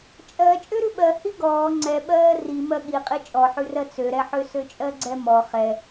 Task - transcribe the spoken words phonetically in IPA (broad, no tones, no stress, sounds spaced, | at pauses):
t͡ʃʼ ɜ t͡ʃʼ ø ɾ ʉ ɓ ɜ h i ɡ ɔː ŋ͡ǀ ɛ ɓ ɜː r i m ɜ ɠ i qʼ i t͡ʃʼ ɔ ħ ʉ r ɜ t͡s ø ɾ ɛ ħ ø s ø t͡ʃʼ ɜ ɡ͡ǀ ɛ m ɔ χ ɛ